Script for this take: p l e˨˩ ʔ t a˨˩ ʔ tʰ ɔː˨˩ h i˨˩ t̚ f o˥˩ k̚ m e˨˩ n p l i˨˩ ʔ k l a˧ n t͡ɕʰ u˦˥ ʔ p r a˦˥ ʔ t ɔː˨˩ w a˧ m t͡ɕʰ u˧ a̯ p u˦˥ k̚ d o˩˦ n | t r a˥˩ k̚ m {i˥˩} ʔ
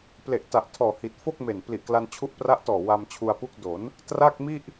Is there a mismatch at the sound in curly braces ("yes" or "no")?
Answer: no